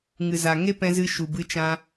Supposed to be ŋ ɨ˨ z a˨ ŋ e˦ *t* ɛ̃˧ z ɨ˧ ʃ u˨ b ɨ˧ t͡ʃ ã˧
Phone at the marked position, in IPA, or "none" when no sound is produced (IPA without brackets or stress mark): p